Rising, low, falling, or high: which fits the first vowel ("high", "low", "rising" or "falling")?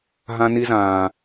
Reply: high